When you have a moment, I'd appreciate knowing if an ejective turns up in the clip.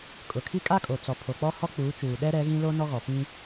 yes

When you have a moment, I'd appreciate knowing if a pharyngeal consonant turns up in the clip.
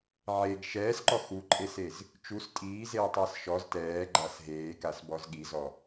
yes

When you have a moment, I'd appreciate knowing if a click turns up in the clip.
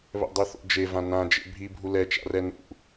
no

